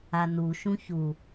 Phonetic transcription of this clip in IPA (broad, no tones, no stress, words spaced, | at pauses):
anu ʃũçu